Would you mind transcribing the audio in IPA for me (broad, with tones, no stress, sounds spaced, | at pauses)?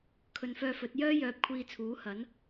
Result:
kʰ ɵ˨ n f œː˧ f ɵ˨˥ t̚ j œː˥ j œː˨˥ p̚ kʷʰ iː˧ t͡sʰ uː˨˥ h ɐ˨˥ n